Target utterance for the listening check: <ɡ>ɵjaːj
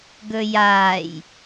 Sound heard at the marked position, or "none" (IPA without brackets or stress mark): ɡ